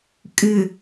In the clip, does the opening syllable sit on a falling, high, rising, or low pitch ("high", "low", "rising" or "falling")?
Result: low